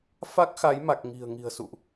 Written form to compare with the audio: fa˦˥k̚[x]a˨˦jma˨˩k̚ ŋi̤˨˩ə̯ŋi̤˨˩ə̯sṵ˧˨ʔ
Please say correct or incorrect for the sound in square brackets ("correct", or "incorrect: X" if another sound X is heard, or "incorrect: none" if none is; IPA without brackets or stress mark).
correct